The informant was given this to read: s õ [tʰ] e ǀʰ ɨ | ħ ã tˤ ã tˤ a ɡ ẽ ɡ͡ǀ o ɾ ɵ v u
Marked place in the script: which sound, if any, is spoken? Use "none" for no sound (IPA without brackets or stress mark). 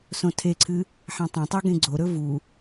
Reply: tʰ